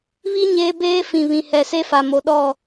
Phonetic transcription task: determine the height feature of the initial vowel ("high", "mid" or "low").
high